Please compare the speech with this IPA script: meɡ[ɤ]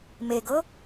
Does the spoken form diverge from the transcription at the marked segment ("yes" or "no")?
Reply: no